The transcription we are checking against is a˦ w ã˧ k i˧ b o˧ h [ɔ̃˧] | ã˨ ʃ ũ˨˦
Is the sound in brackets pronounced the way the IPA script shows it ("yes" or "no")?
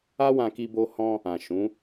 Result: yes